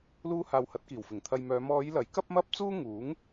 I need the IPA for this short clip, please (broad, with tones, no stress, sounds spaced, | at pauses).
l uː˥ h aː˧ w h ɐ˨˥ t̚ k iː˨˩ w f ɪ˨˩ ŋ t̪ʰ ɐ˧ j m œː˨˧ m ɔː˨˧ j l ɐ˨˥ j k ɐ˥ p̚ m ɐ˥ p̚ t͡s uː˥ ŋ uː˨˥ ŋ